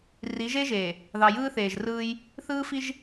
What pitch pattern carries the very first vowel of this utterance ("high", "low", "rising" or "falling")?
rising